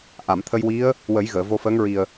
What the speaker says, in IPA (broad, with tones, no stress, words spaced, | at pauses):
ʔa˨˩˨mt̪ʰə˧jwi˧˥ə̯ | wə˨˩˦jɣəː˨˩˨ vo˧fəː˧˥ŋ ɹi˨˩ə̯